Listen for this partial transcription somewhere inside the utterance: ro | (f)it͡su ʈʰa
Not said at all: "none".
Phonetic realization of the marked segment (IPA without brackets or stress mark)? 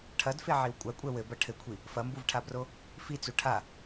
f